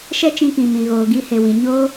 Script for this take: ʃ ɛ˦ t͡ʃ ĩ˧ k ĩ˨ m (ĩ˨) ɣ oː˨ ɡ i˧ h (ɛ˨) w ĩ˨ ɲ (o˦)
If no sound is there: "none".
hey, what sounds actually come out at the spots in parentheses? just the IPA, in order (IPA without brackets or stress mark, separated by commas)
ĩ˨, e˨, o˦